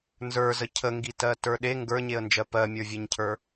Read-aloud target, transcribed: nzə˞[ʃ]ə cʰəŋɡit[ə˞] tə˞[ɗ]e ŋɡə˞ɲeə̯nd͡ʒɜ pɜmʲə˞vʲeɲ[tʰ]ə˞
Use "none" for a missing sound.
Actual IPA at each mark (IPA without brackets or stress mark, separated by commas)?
z, ɜ, ɗ, cʰ